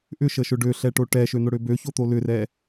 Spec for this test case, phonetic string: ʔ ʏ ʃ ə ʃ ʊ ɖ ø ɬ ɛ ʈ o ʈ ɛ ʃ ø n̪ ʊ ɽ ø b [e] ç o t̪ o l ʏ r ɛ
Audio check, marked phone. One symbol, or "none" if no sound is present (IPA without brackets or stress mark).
ø